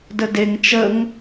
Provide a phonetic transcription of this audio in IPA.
d ə d e ŋ t͡ʃ ə ŋ

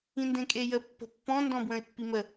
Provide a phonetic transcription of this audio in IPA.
ĩ n d ẽ kʼ e j ə pː ə̤ pː ɔ̃ n d ɔ̃ b w ə̃ ɪ̯ pː i m ə

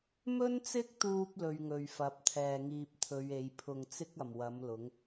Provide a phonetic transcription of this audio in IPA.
m ɵ˥ n t͡s ɪ˥ k̚ t̪ uː˧ p̚ l ɵ˧ ɥ ŋ ɵ˨ ɥ f ɐ˨˥ p̚ t̪ʰ ɛː˨ ŋ iː˧ p̚ t̪ʰ ɵ˨˧ ɥ e˨˧ j pʰ ʊ˨ ŋ t͡s ɪ˥ k̚ ɐ˨˩ m w ɐ˨˥ m l ʊ˨˥ ŋ

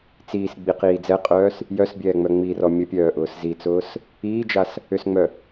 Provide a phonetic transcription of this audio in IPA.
t͡s iː s ɡ͡b i q iː d͡z ɛ qʼ œː s | j œ s bʲ ɛː ŋ͡m œ ŋ͡m i r ɔ mʲ ə pʲ œː ʔ ʊː s z i t͡s ʊː s | iː d͡ʒ a s | ʏ s ŋ͡m œ

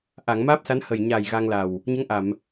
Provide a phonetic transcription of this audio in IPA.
ʔ a˨˩˨ ŋ m aː˦˥ p̚ s a˧˥ n h ə˨˩ j ɲ a˨˩ j ɣ a˧ ŋ l a˨˩ w | ɲ ə˧˥ ŋ ʔ a˨˩˨ m

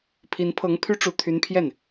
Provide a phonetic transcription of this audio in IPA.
pʰ i˧˥ n pʰ ɤ˧˥ ŋ pʰ y˥ ʈ͡ʂ u˧˥ t̪ʰ y˧˥ n pʰ j ɛ˥˩ n

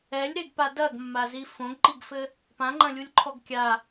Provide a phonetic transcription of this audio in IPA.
ɛ lʲ ɾ e ɡ p a d ɐ ɡ mː a z i f õ ɡ ǃ i ɡ f ɘ | p ã ŋ͡ǃ ɐ̃ lʲ u lʲ ǃʰ ɔ ɡ kʲ a

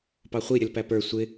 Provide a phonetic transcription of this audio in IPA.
p ɑ χʷ i ɾʲ ə l p æ p ə˞ sʷ ɪ

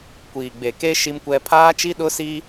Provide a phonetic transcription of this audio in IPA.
kʷ iː˨ ɡ͡b e˨ k e˦ ʃ i˦ m kʷ ɛ˦ pʰ aː˦ t͡ʃ i˦ ɗ ʊ˦ s i˦

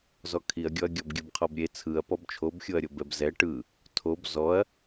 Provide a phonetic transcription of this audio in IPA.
z ɔ kʰ i ɐ̯ ɡʲ ɔ ɐ̯ ɡʲ ɔ b ɡʲ ɯ b qʰ ɔ b ɾʲ e t͡sʰ ɯ ɐ̯ p ɔ b t͡ʃʰ o b xʲ o ɐ̯ ɾʲ o b ɛ b z ɛ ʈ ɯ | tʰ o b z ɔ ɐ̯

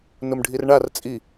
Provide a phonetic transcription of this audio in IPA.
n ʊ m ɖʱ i r ɳ a r t͡sʼ i

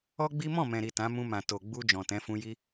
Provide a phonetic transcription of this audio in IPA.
ɔ˦ ɡ͡b i˦ m ɔ̃˦˨ m ɛ̃˨ ɾ i˨ t ã˨˦ m ũ˧ m ã˨ t o˨ ɡ͡b u˧ d͡ʒ ɔ̃˨ t ɛ̃˨˦ f ũ˧ j i˧

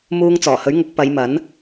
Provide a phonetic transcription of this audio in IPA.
m uː˧ ŋ t͡s ɔː˨˩ h ɵ˨˥ ɥ ŋ ʊ˨˥ k̚ p ɐ˨˧ j m ɐ˨˥ n

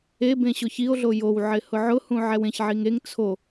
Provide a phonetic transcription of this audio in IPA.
e b ẽ ɕ ʊ ç i o̯ ɮ o j o w ʕ ɪ h ʊ ʕ ʊ h ũ ʕ ɛ w ẽ ç ʕ i ŋ e ŋ t͡sʰ o

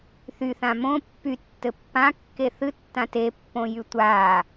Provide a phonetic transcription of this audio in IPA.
θ y θ ã m õ pː y tː ɘ pː ã kː e θ ɨ tː ã t e pː õ j y tʷ a

